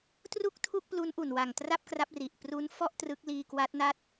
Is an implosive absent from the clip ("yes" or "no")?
yes